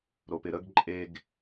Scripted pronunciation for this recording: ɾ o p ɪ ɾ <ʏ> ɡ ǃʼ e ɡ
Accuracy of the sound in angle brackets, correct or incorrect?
incorrect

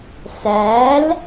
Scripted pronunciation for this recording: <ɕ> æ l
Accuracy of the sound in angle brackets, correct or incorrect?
incorrect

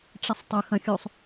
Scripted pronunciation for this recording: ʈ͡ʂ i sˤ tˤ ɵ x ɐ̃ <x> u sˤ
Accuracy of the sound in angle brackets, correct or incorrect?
incorrect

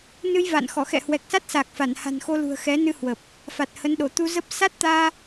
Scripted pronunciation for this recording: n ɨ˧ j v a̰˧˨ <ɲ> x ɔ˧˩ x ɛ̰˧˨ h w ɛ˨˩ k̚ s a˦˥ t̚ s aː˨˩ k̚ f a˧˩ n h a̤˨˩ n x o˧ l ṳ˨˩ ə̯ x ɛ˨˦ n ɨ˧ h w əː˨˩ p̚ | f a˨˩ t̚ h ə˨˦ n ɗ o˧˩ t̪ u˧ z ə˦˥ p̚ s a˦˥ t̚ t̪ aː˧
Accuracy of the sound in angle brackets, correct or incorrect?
incorrect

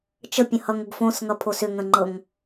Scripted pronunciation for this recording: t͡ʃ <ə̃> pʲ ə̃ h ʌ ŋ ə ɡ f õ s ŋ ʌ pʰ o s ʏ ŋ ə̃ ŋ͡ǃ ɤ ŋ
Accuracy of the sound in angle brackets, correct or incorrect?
incorrect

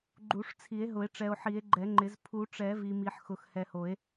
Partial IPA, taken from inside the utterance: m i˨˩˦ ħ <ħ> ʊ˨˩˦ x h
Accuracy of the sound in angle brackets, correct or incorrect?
incorrect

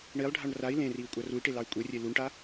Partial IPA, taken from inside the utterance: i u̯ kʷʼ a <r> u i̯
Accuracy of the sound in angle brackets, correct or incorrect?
correct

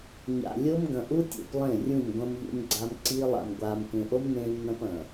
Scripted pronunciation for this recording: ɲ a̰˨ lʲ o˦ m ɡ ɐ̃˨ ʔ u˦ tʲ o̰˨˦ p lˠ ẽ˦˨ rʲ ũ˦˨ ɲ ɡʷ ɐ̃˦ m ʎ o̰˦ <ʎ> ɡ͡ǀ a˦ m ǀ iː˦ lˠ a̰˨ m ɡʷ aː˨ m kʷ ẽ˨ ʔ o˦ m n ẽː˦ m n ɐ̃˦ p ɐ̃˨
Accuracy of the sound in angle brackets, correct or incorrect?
incorrect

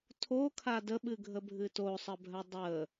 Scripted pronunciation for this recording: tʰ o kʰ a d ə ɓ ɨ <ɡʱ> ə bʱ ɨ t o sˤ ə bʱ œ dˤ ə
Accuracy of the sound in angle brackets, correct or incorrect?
correct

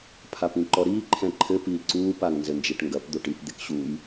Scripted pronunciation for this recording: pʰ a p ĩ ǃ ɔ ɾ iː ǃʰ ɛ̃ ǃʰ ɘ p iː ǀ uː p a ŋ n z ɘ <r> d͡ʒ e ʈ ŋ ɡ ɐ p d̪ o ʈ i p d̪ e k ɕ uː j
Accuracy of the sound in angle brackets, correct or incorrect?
incorrect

